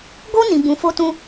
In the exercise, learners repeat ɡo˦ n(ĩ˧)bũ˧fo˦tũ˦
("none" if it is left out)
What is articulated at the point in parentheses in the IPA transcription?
ĩ˧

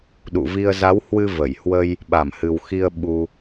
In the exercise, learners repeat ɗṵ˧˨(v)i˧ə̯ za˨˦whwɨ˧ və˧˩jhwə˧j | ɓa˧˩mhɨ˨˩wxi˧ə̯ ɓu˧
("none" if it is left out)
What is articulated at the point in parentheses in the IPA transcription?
v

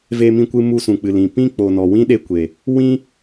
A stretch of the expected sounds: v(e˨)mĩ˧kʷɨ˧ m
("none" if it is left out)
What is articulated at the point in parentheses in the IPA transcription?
e˧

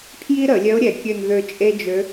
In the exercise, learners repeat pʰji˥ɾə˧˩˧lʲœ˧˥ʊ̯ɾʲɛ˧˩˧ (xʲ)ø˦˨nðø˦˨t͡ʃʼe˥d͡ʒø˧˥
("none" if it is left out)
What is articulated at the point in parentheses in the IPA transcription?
kʲ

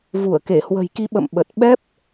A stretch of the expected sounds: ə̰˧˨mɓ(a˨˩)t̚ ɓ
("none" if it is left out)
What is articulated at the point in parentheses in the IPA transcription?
ə˨˩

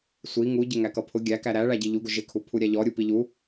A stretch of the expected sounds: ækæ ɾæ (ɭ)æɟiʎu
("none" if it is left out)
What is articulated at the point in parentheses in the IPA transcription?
ɭ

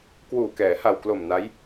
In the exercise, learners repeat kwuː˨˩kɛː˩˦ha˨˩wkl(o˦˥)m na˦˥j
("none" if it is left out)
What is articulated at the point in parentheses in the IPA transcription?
o˨˩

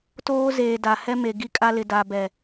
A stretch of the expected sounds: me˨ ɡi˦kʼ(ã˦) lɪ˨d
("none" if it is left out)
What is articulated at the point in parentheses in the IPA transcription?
a˦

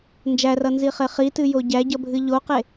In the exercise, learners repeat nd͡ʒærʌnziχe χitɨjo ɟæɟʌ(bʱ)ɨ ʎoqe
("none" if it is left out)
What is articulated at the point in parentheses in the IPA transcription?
bʱ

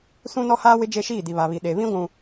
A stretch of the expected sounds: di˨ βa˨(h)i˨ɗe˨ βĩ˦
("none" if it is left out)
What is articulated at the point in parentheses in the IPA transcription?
β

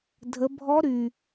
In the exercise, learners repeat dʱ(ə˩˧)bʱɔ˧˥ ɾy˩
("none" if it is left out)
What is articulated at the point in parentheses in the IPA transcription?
ə˩˧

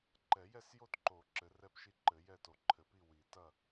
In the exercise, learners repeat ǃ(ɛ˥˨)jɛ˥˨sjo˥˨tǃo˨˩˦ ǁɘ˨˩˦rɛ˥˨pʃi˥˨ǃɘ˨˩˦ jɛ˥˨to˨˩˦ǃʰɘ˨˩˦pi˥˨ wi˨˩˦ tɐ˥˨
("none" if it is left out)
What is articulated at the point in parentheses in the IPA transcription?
ɛ˨˩˦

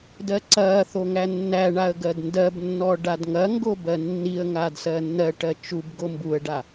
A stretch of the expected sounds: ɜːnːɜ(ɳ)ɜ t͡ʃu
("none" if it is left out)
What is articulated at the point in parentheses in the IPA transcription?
ʈ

